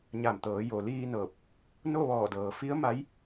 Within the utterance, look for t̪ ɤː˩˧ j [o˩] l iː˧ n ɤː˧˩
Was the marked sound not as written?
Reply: no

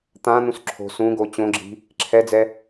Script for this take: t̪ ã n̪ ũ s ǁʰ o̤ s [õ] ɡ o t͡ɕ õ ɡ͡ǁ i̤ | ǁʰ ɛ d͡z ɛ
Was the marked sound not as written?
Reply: yes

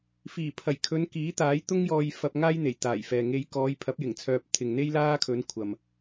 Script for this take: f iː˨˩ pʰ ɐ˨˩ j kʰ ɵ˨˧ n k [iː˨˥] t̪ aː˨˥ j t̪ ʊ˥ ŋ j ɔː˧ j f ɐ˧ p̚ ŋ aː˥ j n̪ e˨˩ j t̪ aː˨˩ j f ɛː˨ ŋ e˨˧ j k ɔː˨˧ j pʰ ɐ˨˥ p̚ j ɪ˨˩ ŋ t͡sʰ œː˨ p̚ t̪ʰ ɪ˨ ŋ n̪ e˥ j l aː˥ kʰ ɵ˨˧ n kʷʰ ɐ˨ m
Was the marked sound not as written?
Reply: no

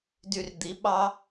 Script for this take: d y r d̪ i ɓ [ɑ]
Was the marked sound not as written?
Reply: no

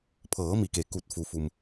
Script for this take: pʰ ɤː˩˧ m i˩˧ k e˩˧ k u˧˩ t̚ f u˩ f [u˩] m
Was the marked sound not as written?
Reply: no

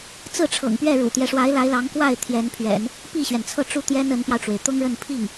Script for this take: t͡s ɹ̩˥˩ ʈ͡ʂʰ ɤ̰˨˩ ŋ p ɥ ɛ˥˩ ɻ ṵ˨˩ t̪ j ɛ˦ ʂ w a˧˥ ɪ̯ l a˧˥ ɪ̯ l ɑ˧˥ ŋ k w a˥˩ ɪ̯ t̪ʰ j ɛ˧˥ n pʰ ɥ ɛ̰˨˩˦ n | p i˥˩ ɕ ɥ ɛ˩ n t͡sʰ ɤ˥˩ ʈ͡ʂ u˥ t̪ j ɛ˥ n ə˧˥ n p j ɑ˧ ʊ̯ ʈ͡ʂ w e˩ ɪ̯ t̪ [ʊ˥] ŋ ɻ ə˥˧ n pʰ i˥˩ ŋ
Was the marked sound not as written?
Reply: no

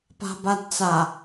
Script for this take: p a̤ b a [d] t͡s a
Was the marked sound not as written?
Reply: no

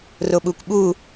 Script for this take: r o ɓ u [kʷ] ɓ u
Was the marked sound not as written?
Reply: no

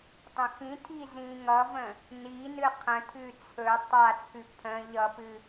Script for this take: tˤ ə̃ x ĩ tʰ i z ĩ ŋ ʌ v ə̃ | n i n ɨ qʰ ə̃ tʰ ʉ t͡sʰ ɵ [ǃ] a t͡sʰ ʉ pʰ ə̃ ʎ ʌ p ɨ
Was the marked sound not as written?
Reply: yes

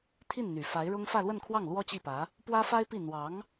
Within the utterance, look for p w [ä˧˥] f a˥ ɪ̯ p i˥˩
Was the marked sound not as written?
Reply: yes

